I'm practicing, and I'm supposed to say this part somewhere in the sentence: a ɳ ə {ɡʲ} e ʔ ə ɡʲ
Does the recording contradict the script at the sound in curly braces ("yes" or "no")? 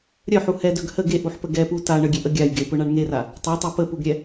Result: no